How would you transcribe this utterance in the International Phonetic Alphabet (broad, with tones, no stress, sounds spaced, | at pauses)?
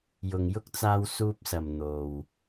j ʊ˨ ŋ j ʊ˥ k̚ t͡s aː˧ w s uː˧ p̚ s ɐ˨ m n̪ o˨ w